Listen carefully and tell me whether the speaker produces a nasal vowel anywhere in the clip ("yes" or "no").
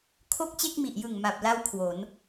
no